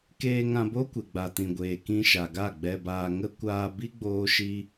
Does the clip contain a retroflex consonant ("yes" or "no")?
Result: no